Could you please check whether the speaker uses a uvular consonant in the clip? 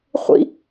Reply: yes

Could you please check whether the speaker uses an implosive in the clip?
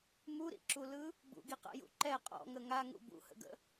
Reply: no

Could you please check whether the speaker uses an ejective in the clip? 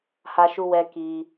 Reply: no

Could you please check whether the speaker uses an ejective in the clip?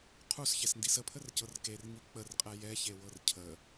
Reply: yes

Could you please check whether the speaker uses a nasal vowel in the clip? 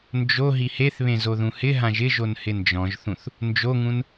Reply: yes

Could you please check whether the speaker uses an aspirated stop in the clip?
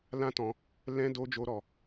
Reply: no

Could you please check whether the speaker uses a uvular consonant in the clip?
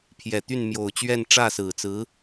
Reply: no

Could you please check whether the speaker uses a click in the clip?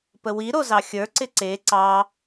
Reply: yes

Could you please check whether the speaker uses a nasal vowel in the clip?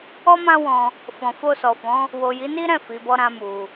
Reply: yes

